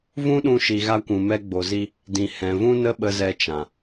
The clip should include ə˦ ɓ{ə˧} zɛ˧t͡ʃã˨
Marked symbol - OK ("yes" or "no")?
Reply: yes